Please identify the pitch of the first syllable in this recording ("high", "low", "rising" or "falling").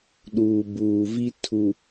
low